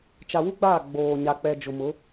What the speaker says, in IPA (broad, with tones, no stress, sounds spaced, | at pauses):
t͡ʃ a˨ w u˦ ɡ͡b aː˦˨ ɡ͡b oː˨ ɲ a˨ k͡p ɛ˨ d͡ʒ ʊ˨ m ʊ˨˦